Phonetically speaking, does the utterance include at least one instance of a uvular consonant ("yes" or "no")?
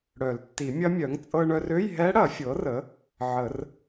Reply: no